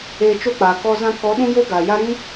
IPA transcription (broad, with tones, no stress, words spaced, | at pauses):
eː˧ t͡ʃo˦˨k͡paː˨kɔ˧ zã˧kɔ˨˦ ɗũ˦jo˦ɡaː˨ja˦ ɾĩ˦